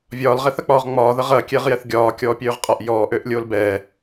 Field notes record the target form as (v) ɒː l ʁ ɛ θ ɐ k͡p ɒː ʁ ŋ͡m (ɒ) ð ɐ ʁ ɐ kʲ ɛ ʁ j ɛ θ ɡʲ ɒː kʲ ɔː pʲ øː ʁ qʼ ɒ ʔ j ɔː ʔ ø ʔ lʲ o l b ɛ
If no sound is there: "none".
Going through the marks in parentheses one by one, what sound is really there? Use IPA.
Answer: vʲ, ɒː

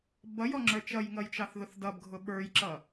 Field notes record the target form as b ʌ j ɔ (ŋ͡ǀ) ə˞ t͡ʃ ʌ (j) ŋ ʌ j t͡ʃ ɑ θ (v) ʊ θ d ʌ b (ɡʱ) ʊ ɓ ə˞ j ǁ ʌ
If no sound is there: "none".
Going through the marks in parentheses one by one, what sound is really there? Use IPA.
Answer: ŋ͡ǁ, j, ð, ɡʱ

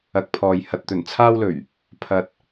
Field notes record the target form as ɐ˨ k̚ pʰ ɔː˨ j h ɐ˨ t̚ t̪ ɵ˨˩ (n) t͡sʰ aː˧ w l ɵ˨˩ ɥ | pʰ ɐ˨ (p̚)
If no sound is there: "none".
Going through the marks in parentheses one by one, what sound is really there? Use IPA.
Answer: n, t̚

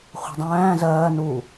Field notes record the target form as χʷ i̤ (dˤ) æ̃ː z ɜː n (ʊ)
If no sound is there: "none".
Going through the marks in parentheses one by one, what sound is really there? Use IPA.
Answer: dˤ, u

